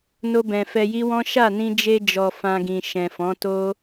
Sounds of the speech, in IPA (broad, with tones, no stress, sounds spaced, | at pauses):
n o˧ b ɛ̃˨ f ɛ˧ j i˦ w ɔ̃˦ ʃ a˦˨ n ĩ˧ d͡ʒ e˧ d͡ʒ ɔ˨ f ã˧ ɡ ĩ˨ ʃ ɛ̃˨ f ɔ̃˨˦ t o˦